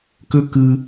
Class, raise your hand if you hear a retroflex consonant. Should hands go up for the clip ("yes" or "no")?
no